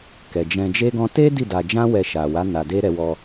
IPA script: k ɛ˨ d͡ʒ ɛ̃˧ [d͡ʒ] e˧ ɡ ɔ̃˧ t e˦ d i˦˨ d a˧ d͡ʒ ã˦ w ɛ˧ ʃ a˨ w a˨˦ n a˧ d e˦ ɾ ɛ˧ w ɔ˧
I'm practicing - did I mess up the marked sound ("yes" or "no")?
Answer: no